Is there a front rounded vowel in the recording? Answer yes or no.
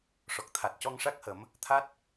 no